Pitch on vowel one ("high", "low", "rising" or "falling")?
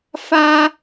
high